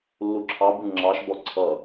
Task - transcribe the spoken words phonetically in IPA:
lː u ǁʰ ɑ b u ŋ͡ǁ ɑ ʃ b ɔ ǀʰ ʌ

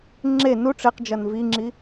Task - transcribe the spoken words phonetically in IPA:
ŋ͡ǁ e n u ʈ͡ʂ e q d͡ʒ ɐ n v i ŋ͡ǁ i

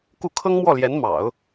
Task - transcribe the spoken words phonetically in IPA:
k u˥˩ kʰ ɤ˥ ŋ m w ɔ˥˩ l j ɛ˧˥ n m ɑ̰˨˩˦ ʊ̯

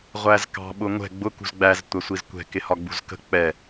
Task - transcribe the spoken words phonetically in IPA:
ʁʷ æ z k ɑ̤ ɓ ʊ ŋʷ ɛ̤ ɡ͡b ʊ k ṳ z ɡ͡b æ z tʷ æ sʷ i z kʷ ɛ̤ k ɪ h ɒ ɡ͡b ṳ z k ə̤ k͡p ɛ

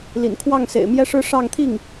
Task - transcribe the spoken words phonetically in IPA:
l ḭ˨˩ n kʰ w ɑ˥˩ ŋ s ḛ˨˩ ɪ̯ m j ɛ˥ ʂ ɻ̩˥˧ ʂ ɑ˥˧ ŋ t̪ʰ i˥˩ ŋ

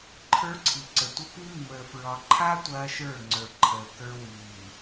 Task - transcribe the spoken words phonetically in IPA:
ǃʰ ə˞˦ ǀʰ i˨ ǀ ə˨ tʷ ə˦ p i˦ mː əː˨ f ɹ ɒ˨ ǃʰ a˦ tʷ ɐː˦ ʃ ə˞˦˨ ŋ͡ǀ ə˞˨ ǃʰ əː˨ k ə˞˦ w iː˨

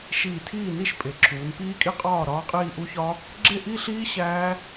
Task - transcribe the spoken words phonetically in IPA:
ʃ iː˧˩ tʰ iː˥˩ n i˥˩ ʃ pʼ e˩˧ ǁʰ uː˩˧ n p iː˦˥ kʼ i˥˩ qʼ ɒː˥˩ ɾ ɒː˦˥ qʼ iː˥˧ ʔ u˦˥ ç ɒ˦˥ | ɡ͡ǁ e˥˩ ʔ i˥˧ ɬ iː˦˥ ɕ æː˦˥

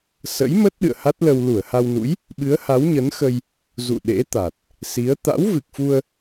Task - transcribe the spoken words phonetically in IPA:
s ə̰˧˥ j m ə˦˥ t̚ ɗ ɨ̰˧˨ ə̯ h a˦˥ t̚ l ə˧ w l u˧˩ ə̯ h a˧ w n ṵ˧˥ j | ɓ ɨ˨˦ ə̯ h a˨˦ w ɲ ə˨˦ n x ə˧ j | z ṵ˧˨ ɗ ḛ˧˥ t̪ a˨˩ t̚ | s i˨˦ ə̯ t̪ a̰˧˥ w v ɨ˨˩ k̚ f u˧ ə̯

